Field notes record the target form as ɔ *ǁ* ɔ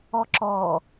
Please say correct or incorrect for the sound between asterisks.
correct